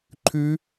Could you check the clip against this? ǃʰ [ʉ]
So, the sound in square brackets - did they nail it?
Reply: yes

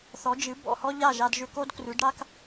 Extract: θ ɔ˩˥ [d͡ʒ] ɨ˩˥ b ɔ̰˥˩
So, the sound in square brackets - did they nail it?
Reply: yes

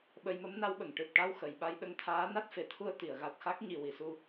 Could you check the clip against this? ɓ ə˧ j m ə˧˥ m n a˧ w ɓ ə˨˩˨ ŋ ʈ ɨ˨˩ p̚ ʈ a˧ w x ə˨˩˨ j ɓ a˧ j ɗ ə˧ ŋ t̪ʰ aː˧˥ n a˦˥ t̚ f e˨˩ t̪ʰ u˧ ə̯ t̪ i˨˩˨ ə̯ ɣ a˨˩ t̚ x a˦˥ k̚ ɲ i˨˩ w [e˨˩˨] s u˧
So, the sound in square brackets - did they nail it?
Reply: no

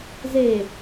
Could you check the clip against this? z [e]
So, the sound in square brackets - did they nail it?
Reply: yes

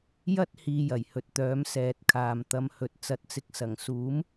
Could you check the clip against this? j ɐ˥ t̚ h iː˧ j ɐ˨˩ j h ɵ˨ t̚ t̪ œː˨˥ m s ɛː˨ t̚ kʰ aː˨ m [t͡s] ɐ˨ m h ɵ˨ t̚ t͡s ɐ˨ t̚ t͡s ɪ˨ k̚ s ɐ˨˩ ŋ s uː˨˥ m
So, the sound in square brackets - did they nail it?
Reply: no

